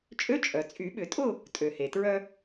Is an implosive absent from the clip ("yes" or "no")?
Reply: no